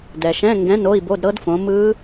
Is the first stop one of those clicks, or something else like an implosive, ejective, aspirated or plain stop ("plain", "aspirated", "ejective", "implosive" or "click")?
plain